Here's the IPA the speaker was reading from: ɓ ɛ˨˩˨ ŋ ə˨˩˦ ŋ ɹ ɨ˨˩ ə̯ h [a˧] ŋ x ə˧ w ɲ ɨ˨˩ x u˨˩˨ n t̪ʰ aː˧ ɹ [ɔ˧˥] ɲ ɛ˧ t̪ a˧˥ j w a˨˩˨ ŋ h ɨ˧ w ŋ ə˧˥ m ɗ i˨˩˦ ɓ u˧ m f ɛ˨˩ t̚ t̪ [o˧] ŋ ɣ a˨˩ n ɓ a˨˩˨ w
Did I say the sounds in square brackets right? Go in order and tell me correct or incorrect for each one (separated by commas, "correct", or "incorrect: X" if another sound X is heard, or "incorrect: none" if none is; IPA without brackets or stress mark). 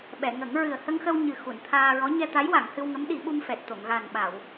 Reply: incorrect: ə˧, correct, incorrect: o˨˩˨